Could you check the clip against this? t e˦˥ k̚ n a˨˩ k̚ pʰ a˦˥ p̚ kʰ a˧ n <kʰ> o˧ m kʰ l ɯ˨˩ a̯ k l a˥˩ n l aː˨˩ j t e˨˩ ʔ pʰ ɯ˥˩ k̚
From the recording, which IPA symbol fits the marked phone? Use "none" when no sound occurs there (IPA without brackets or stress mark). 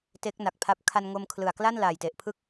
ŋ